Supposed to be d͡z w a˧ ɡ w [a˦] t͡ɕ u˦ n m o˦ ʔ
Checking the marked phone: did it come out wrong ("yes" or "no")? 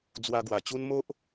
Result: yes